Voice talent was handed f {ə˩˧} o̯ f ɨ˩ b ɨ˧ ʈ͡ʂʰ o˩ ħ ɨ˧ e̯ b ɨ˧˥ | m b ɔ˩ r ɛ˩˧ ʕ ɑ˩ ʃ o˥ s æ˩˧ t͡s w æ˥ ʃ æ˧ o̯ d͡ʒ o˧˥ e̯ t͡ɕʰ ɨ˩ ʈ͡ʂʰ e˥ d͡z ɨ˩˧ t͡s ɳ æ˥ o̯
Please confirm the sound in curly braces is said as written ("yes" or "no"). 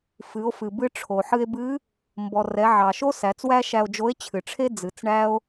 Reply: no